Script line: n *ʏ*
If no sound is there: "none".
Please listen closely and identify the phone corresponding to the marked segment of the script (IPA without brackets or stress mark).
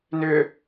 ʏ